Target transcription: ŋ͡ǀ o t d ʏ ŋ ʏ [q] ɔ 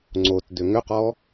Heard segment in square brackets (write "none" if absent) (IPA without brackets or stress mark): q